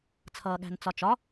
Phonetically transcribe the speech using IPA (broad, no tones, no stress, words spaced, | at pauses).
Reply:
t͡sʰʌːɠæ̤nt͡sɒt͡ʃɒ